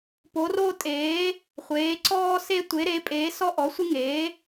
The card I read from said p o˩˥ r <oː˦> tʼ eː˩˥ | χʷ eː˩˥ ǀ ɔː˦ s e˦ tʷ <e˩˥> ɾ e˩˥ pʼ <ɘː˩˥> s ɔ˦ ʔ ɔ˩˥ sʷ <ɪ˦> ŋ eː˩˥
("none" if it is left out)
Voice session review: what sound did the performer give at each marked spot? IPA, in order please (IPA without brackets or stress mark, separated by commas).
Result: oː˦, e˩˥, eː˩˥, ɪ˦